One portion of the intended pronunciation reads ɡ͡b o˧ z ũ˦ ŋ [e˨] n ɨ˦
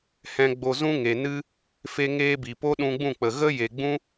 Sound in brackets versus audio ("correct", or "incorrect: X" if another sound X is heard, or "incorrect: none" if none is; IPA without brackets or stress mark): correct